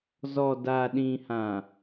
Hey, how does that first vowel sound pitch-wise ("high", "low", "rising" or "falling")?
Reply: low